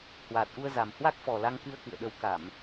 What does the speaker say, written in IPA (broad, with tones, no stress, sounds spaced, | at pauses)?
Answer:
h w aː˨˩ t̚ ʔ u˧ ə̯ z a˨˩ m h w a˦˥ k̚ f ɔ˨˩ l a˧ ŋ k ɨ˧ ə̯ k ɨ̰˧˨ ə̯ ɗ ə˨˦ w k a˧˩˨ m